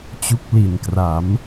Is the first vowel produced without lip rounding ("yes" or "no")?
no